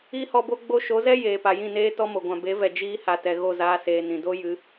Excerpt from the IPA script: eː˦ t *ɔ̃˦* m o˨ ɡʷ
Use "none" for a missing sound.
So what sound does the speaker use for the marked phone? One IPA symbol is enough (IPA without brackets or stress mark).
ɔ˦